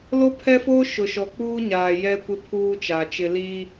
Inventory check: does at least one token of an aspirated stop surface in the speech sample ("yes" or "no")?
yes